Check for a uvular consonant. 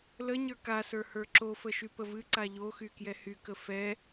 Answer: absent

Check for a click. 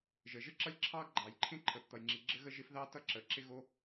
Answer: present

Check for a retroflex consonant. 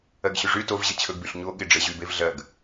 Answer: present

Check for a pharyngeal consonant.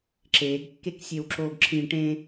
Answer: absent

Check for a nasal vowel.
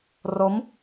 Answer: absent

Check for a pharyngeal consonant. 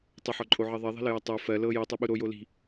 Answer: present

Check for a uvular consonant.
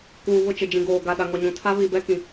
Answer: absent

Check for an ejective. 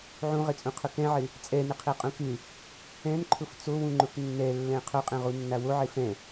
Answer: present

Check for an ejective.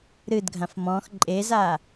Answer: present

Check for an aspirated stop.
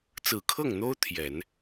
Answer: present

